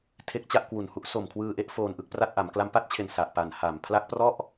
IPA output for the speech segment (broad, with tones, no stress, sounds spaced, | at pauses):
tʰ e˦˥ k̚ t͡ɕ a˥˩ ʔ k w u˨˩ n h u˦˥ ʔ s o˨˩ m kʰ w ɯː˧ ʔ e˦˥ ʔ f oː˧ n ʔ ɯ˥˩ k̚ p r a˥˩ t̚ ʔ a˩˦ m k l a˧ m p a˥˩ t̚ t͡ɕʰ e˨˩ n s a˨˩ ʔ p a˨˩ n h a˨˩ m pʰ l a˦˥ k̚ p r ɔ˥˩ ʔ